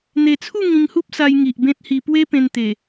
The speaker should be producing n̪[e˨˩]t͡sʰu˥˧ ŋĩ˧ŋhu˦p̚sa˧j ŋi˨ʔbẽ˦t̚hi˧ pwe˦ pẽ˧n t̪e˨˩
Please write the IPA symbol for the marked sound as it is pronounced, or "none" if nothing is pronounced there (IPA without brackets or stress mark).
e˨˩